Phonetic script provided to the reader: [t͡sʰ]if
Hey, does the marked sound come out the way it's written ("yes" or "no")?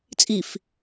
no